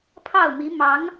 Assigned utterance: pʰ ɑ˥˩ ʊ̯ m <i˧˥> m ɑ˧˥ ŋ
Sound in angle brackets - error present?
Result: no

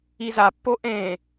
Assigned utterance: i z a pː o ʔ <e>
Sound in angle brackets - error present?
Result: yes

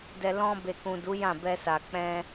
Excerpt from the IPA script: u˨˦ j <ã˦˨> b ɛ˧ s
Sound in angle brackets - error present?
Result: no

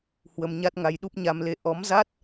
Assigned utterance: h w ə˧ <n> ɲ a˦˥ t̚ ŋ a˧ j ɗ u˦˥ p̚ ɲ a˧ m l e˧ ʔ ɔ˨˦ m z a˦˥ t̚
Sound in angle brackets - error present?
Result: yes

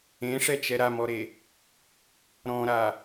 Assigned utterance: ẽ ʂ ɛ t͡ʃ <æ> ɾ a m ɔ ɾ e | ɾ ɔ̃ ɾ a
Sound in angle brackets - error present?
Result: yes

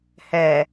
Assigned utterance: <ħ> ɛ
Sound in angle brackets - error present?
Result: yes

